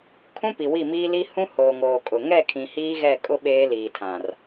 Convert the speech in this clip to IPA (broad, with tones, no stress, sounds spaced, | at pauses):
kʰ ũ˦ p i˨ w i˦˨ m iː˦ l i˦ h ũ˦ h oː˨ ŋ oː˨ kʼ ʊ˨ ŋ ɛ˦˨ kʰ ĩ˨ h iː˦ ɣ ɛ˦˨ kʼ ʊ˦ ɓ eː˦ l iː˨ tʰ ã˨ r